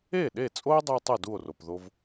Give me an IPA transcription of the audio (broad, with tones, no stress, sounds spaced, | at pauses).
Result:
e˥˩ ɗ e˥˩ t͡sʼ o˥ e̯ dˤ u˧ tˤ ɯ˥˩ d u˥˩ o̯ r o˩ p ð o˧ v